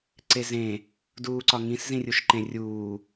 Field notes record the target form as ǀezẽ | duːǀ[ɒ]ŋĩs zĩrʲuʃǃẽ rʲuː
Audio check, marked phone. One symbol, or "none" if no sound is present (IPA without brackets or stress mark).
ɒ